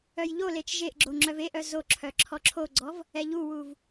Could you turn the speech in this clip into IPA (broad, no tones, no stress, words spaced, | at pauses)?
œjʎolet͡ʃ ʒeʔɡ͡ǁo ŋ͡ǁœveʔœ zo ǁʰœǁʰɔǁʰoɡ͡ǀɔv | ɛʎuwuv